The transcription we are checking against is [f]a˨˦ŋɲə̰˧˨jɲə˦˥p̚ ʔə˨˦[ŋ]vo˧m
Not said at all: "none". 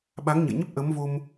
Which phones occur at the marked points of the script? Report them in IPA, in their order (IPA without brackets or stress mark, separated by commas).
ɓ, m